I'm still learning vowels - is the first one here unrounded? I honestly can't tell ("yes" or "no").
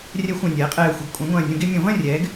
yes